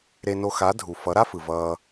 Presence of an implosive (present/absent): absent